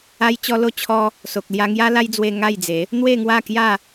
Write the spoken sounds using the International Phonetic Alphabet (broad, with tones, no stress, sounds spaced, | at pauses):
a˧ j t͡ɕ ɔ˧ l o˧ t͡ɕʰ ɔ˧ | s o˨ k̚ l j a˧ ŋ j a˦ l a˦ j d͡z w e˧ ŋ a˥˧ j d͡z e˨˦ | n̪ w e˥˧ ŋ w a˥˧ k j a˥˧